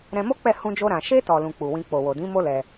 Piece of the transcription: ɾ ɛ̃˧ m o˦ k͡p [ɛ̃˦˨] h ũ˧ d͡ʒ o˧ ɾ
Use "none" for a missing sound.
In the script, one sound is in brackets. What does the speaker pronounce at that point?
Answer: ɛ˦˨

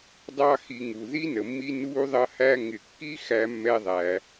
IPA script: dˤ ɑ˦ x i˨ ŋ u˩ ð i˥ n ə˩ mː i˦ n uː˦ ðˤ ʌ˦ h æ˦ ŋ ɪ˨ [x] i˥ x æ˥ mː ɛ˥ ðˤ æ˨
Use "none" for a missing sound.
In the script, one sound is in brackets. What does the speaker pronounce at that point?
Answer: kː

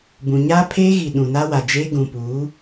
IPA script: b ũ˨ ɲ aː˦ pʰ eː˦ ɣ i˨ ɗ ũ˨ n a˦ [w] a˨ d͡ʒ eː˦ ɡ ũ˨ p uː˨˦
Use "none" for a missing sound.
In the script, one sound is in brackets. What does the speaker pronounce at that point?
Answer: w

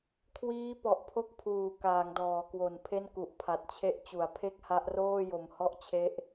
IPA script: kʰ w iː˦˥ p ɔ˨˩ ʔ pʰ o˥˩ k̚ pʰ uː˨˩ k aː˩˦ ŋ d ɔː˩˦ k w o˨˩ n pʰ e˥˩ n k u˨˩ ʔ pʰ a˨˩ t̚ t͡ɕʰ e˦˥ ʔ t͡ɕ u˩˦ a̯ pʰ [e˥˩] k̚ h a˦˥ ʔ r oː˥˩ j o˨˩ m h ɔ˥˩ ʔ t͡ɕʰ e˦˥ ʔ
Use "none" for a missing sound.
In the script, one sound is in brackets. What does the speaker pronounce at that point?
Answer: e˥˩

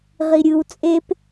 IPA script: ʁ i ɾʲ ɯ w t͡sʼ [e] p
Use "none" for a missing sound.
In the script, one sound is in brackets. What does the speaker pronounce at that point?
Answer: e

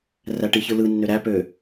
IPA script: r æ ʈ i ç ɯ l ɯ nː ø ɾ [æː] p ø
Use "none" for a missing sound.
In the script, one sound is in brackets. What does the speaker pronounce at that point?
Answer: æ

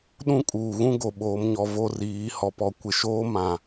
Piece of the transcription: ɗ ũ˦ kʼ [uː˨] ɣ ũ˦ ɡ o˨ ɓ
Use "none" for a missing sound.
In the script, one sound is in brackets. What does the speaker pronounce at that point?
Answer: uː˨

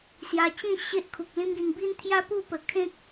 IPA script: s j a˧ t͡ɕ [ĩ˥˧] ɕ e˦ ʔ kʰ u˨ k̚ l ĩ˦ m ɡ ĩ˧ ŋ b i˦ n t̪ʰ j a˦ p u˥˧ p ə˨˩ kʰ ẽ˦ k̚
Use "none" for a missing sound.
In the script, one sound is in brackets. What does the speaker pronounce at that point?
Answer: ĩ˥˧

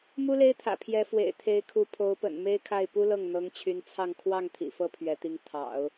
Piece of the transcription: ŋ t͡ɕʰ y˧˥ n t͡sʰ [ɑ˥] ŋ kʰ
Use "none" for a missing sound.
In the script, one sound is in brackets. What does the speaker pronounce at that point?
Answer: ɑ˥˧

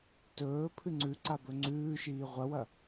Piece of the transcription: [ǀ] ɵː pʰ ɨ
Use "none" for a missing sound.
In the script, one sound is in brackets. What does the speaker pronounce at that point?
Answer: t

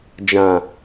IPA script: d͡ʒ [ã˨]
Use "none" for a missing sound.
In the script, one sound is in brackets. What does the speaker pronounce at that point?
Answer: ã˨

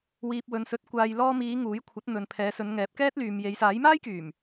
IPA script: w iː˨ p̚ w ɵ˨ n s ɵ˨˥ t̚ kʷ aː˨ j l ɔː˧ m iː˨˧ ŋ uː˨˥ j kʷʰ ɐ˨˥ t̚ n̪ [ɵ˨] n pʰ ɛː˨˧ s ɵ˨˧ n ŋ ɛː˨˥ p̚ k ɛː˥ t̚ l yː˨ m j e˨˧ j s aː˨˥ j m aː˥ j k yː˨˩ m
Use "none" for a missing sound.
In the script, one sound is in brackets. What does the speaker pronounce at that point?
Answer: ɵ˨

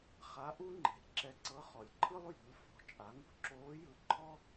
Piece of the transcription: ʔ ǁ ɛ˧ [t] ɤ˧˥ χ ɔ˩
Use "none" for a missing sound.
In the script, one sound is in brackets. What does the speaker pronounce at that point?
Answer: ǀ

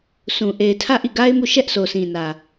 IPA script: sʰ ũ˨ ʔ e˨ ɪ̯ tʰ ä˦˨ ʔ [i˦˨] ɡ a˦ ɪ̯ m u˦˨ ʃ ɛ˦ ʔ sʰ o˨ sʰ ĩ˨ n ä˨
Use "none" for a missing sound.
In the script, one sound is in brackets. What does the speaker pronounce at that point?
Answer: i˦˨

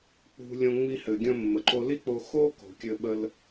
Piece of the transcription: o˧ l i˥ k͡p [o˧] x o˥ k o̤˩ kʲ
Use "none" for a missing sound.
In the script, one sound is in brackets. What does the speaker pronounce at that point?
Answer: o˧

